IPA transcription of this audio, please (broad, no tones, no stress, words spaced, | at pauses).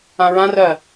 ãɹãrɜ